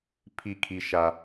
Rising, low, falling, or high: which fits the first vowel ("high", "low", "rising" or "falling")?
falling